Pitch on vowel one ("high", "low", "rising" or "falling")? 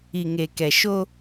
low